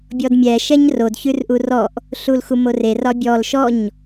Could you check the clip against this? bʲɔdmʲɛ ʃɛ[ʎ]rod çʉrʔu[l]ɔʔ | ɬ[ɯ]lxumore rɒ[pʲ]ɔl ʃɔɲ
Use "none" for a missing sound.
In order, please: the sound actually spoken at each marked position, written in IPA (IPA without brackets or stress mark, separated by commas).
ɲ, r, u, bʲ